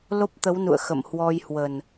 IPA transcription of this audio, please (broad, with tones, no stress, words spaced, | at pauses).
lo˦˥p̚t̪ə˨˦wnṵ˧˨ə̯xə̰˧˨m hwɔ˧j hwə˨˩n